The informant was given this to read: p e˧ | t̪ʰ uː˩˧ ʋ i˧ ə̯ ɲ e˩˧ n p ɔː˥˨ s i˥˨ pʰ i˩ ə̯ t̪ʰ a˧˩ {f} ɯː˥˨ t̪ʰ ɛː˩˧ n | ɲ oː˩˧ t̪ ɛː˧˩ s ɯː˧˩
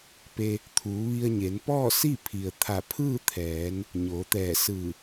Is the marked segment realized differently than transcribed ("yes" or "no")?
yes